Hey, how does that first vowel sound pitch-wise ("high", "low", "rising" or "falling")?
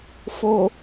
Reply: low